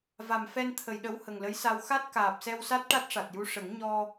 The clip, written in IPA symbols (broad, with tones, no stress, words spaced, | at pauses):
va˨˩mfɛ˧nt̪ʰə˨˩˨j ɗə˧˥w hə˨˩ŋlə˧˥jsa˧w xa˦˥t̚kaː˨˩p̚sɛ˧wsa˦˥t̚ ʈa˦˥t̚ʂa˨˩t̚ju˧˥ ʂə˨˩˦ŋ ɲɔ˧